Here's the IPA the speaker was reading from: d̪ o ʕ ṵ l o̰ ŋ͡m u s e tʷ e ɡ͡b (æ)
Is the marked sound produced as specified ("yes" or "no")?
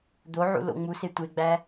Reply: yes